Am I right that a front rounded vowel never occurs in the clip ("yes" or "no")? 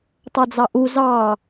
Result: yes